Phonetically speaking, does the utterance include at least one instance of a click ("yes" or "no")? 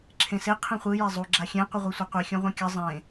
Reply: yes